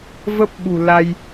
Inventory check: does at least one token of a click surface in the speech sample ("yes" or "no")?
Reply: no